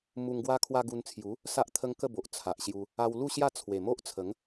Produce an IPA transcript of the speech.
m u˧ ŋ ɡ w a˦ kʰ w a˧ ɡ u˧ n t͡sʰ j u˨˦ | s a˦ ʔ t̪ʰ ə˦ ŋ k ə˥˧ b o˨ ʔ t͡sʰ a˨ ʔ ɕ j u˧ | a˧ w l u˥˧ ɕ j a˥˧ t͡sʰ w e˨˩ m o˦ ʔ t͡sʰ ə˨˦ ŋ

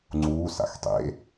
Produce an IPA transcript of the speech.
ŋ͡ǀ uː s a̰ x tˤ ḛ

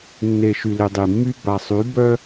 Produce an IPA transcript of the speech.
nː e˨ ʃ y˨ l e˨ dˤ i˨ mː y˦ b a˨ sˤ y˨˦ b œ˦

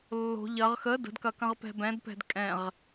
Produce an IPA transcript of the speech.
lː o̤ ʎ ɐ ʁ x ə d ə̤ d k ɐ k ɐ̃ ʁ p ɛ̤ b ɛ̃ d p ɛ̤ d kʼ ɛ̃ ʁ

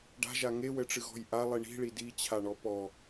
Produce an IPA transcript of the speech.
ɖ a̤ ʒ a ŋ e w ɘ ʈ͡ʂ ɨ ɣ ɔ̤ j ʔ a lˠ i ɳ i̤ ɭ i d i t͡ɕʰ a ɳ ɔ p ɔ

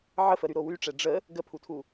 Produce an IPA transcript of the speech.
ʕ ə f ə ɾ y ɾ o w y ʈ͡ʂ ɛ ɖ͡ʐ ə | ɡ ə pʰ u tʰ u

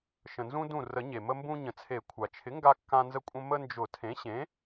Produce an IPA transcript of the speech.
ʃ ə̃˩ n z ũ˧ d ũ˧˩ r ə˨˩˦ ɲ e˩ m ə˧ m b ũ˧ ɲ ə̃˩ t͡sʰ e˨˩˦ kʷʰ a˩ t͡ʃʰ ɪ˩˥ ŋ ɡ a˧ kː ã˧ n z ə˧ kʷʼ ə̃˧ m ə˧ n d͡ʒ ʊ˨˩˦ tʰ ẽ˩˥ ɕ ẽ˩˥

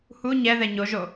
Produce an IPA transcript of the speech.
h u ɲ ɛ ð ɛ ɲ o ʒ o

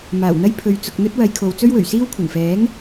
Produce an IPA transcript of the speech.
m aː˨˩ w n̪ ɐ˥ j pʰ ɵ˨ ɥ t͡s ʊ˧ k̚ n̪ ɵ˥ t̚ w ɐ˨˧ j kʰ o˨˧ w t͡s ɵ˥ ɥ w ɵ˨˩ ɥ s iː˥ w kʷʰ ɐ˨˩ n f ɛː˨˥ ŋ

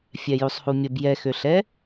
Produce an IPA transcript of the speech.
fʲ ɛ j u sˤ h u mʲ ə b j ɛ x ø ɬ ɛ

